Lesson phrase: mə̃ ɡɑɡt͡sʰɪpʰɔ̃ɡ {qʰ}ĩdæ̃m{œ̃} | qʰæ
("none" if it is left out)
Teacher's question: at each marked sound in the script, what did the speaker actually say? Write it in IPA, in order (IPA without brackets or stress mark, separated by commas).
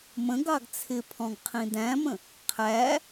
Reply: qʰ, ə̃